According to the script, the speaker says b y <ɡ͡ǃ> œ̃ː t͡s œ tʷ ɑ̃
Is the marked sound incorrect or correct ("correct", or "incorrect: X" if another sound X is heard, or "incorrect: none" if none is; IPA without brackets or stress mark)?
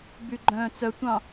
correct